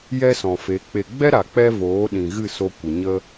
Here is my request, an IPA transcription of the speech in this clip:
j ɛ˦ s ɔ̃˨ f e˨˦ k͡p e˨ ɡ͡b ɛ˦ ɾ a˨ k͡p ɛ˦ v oː˨˦ ɗ ĩ˨ ɣ ɨ˦˨ s o˧ kʷ ə˨ ɲ ə˦

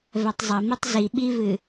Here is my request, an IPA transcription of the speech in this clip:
v ɛ tˤ zˤ ɐ m i tˤ z i ɓ i v ɨ

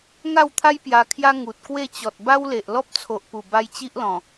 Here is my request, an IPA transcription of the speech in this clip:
ŋ a˥˧ w t̪ʰ a˦ j p j a˧ kʰ j a˦ ŋ u˨ t̚ k w e˥˧ t͡ɕ ɔ˨ t̚ b a˦ w l e˨ ʔ l ɔ˦ p̚ t͡sʰ o˨ ʔ p u˨˩ b a˧ j t͡ɕ i˦ ʔ l ɔ̃˨˩

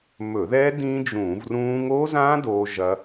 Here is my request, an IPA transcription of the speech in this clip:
m ɵ˧˩˧ ð ɛ˦˥ d ĩ˦˥ d͡ʒ ũː˧˩˧ v r ũː˦˥ ŋ o˦˥ z ã˦˥ d oː˦˥ ʒ ɐ˦˥

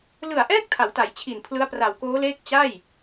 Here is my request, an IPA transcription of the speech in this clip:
l ɯ˨˩ a̯ ʔ ɛː˥˩ k̚ tʰ a˩˦ w t a˩˦ j t͡ɕʰ i˨˩ n pʰ l ɯ˦˥ a̯ p r a˨˩ w k oː˦˥ l eː˥˩ k̚ t͡ɕ a˥˩ j

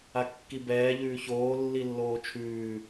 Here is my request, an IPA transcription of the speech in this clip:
a kː i b ɛː ʎ ʉː ç oː lː i lː oː t͡ʃʰ ʉː

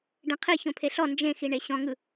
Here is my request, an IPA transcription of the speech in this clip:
ɖ ẽ qʰ i ç õ pʰ e ɬ ɔ n d͡ʒ ẽ x i ɳ e ɕ ɔ̃ ŋ ɯ

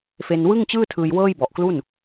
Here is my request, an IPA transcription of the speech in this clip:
f e˧ n w ɯ˥˩ ŋ t͡ɕ ɯː˥˩ tʰ ɯː˧ j w ɤː˥˩ j b ɔ˨˩ ʔ k l u˥˩ n

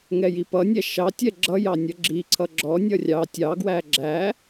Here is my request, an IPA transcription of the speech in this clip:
ŋ ɛ j i p ʌ nʲ æ ʃ ɑ tʲ ɛ ɡ͡ǁ ʌ j ɑ nʲ ʌ ɡ͡ǁ i ǀʰ ʌ ɡ͡ǁ ɔ nʲ ʌ rʲ ɑ tʲ ɑ ɡ w æ ɡ͡ǁ æ

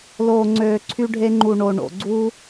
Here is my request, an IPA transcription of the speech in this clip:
l oː˨ ŋ͡ǀ øː˨ ǀʰ y˧ ɖʱ e˧ ŋ͡ǃ u˨ ɳ o˨ ɳ o̰˨ ɡ͡ǀ uː˦

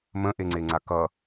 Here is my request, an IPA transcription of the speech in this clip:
m ə̃ ʔ e ŋ͡ǀ e ŋ͡ǀ a k ʌ

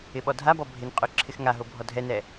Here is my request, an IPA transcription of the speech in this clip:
ɪ ɓ ɔ dʱ a b ɔ bʱ ɪ n qʼ ø ǁʰ ɪ x ŋ a ɦ o bʱ ɔ dʱ ɛ n ɛ

